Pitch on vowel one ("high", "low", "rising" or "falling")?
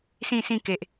falling